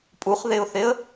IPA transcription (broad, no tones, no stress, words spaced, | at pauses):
pʼuχðeʊ̯θeə̯